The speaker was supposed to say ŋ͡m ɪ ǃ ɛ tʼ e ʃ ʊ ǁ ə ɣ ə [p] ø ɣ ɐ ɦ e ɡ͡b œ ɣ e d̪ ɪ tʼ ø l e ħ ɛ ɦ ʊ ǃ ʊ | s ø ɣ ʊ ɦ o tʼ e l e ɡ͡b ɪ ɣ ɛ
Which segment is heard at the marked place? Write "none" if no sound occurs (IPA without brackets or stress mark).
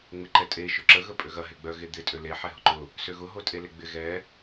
pʼ